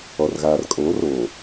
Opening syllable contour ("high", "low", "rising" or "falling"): low